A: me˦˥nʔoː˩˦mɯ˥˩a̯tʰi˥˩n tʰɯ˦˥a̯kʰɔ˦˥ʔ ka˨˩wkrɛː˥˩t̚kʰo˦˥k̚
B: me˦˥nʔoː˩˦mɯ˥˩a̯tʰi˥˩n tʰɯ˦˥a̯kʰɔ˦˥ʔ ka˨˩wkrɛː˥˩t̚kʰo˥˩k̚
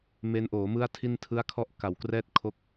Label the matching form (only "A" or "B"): A